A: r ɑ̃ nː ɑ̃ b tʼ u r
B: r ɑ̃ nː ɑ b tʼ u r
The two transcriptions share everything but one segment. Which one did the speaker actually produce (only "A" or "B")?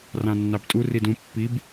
B